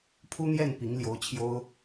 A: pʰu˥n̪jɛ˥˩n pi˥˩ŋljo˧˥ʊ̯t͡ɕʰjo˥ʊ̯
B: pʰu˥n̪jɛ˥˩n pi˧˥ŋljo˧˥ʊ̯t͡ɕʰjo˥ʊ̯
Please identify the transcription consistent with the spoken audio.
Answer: B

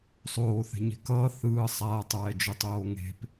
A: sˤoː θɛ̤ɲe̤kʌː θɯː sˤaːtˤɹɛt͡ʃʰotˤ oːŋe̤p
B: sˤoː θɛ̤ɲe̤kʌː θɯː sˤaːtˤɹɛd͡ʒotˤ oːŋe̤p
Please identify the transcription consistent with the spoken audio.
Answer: B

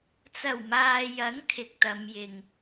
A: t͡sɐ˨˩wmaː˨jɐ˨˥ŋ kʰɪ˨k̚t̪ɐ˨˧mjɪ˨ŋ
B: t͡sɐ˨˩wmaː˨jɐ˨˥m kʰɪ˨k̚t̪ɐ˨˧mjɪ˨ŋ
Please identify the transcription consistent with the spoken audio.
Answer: A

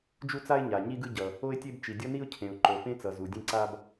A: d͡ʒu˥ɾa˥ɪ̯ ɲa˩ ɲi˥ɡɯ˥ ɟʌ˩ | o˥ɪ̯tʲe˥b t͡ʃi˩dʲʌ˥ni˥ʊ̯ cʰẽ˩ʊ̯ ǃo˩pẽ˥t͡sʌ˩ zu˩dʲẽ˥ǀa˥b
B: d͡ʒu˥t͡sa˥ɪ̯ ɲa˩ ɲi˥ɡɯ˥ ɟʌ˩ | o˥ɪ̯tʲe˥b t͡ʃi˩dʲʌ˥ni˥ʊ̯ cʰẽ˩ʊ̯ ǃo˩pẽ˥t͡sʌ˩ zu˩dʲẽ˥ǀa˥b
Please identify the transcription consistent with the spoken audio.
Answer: B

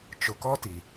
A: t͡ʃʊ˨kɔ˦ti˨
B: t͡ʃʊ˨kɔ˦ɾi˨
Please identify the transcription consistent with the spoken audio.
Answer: A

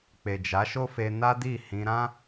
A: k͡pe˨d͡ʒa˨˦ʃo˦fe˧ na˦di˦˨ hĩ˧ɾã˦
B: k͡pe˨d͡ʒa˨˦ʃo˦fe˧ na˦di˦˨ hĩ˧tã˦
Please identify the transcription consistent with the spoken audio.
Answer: A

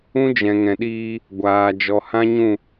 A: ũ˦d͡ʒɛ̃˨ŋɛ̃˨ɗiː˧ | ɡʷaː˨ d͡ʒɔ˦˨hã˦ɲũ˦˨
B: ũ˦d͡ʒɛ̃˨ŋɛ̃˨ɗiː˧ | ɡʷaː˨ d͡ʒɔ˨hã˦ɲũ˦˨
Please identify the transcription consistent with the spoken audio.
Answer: B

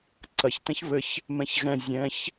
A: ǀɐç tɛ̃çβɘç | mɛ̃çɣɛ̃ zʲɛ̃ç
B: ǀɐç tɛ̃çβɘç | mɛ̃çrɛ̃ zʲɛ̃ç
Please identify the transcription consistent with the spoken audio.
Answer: A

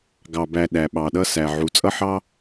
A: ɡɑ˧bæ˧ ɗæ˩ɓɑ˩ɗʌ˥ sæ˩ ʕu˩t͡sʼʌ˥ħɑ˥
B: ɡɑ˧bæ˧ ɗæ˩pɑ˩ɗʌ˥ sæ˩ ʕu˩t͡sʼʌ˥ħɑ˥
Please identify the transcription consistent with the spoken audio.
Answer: A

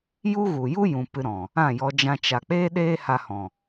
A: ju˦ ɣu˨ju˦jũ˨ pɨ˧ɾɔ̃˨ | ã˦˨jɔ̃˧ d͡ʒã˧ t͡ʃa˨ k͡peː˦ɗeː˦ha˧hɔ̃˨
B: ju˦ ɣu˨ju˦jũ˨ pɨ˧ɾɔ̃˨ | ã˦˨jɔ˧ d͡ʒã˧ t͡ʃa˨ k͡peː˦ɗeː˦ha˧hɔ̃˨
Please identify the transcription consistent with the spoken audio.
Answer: B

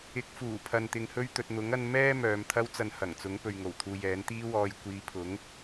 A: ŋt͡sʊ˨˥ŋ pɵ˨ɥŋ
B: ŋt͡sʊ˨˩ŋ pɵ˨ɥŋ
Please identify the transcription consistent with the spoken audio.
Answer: A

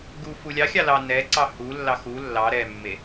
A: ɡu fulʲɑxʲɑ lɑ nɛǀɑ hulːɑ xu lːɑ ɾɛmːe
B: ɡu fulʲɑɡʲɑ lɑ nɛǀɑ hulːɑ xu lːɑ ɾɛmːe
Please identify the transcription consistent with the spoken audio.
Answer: A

